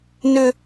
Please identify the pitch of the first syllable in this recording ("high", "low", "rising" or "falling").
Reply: high